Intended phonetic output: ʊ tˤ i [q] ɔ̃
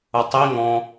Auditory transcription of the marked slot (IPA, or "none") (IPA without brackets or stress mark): ŋ